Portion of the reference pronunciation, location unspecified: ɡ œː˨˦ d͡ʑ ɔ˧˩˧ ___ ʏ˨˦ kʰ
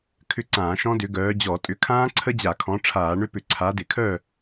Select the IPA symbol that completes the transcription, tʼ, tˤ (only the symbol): tʼ